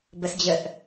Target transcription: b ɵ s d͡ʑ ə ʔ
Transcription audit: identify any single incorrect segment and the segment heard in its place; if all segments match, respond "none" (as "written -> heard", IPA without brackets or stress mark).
ɵ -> ə